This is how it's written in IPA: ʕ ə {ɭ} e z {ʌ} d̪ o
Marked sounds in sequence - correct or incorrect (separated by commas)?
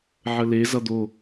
incorrect, correct